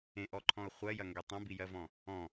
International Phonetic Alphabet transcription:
ẽʔɔǃʰɔ̃ʊ̯ χʷɜjɐŋɡe tˤɐ̃bijɜvɔ̃ | ɔ̃

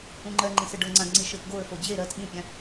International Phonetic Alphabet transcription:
ũŋ͡ǃɜŋ͡ǃĩsə ɖɤŋ͡ǀãɡŋ͡ǀi ʃɘfɡoə̯fo d͡ʑe ɾɜt ɓĩpʲã

